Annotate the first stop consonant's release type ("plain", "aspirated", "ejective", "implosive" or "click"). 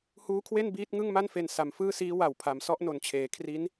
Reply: aspirated